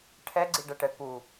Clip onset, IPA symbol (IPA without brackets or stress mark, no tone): ʈʰ